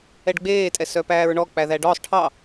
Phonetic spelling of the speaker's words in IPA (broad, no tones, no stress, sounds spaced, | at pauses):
ɛ ɖ ɡ͡b eː tʼ ɛ s œ p æː ɹ ɳ ɔ k͡p æ ð æ ɖ ɔ sˤ ʈʰ ɑ